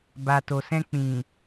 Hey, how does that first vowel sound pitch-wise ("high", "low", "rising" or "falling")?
low